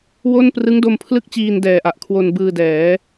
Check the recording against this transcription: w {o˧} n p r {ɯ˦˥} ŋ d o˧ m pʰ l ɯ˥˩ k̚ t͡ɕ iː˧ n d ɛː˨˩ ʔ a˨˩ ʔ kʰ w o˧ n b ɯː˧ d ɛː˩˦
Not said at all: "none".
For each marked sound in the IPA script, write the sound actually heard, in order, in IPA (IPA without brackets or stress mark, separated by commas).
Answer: o˥˩, ɯ˦˥